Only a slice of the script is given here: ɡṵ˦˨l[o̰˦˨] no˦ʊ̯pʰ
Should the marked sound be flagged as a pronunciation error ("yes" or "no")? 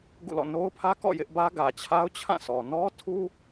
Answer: yes